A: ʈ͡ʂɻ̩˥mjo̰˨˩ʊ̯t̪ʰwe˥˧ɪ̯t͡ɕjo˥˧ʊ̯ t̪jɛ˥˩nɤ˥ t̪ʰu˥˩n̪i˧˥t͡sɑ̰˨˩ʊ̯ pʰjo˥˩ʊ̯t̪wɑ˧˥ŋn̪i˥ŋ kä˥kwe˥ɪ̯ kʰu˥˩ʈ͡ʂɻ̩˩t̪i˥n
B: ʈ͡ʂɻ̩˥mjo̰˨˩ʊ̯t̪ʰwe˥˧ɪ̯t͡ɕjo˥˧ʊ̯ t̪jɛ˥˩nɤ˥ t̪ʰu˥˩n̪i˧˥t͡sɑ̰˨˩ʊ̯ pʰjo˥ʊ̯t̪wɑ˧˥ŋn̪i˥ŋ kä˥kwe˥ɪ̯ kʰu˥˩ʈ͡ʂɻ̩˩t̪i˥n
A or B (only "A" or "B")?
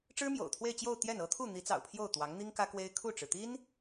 A